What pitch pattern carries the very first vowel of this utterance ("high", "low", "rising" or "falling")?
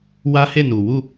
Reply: high